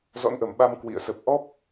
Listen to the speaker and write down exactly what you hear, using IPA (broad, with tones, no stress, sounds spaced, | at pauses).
z ɔ̰˧˥ n ʔ ə˧˩ m ɓ a˧ m k w ḭ˧˨ ə̯ s ə˨˩ p̚ ʔ ɔ˦˥ p̚